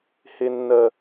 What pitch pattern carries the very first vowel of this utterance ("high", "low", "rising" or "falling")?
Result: low